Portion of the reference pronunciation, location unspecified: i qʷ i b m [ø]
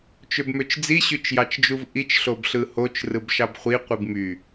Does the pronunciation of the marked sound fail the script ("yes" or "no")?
yes